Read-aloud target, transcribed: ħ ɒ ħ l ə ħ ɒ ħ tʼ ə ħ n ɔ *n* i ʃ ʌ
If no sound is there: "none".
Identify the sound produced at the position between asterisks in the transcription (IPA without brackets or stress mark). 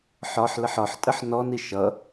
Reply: n